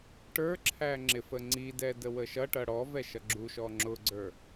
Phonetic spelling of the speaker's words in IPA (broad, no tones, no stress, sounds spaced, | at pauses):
ʈ ə˞ ǁʰ æ ŋ͡ǁ ɪ f ə ŋ͡ǀ i d ɛ d ə w ə ʃ ʌ ʈ ʌ ɽ ɔ v ɛ ʃ ʌ ɡ͡ǁ u ʃ ɔ ŋ͡ǁ ʊ ɡ͡ǀ ə˞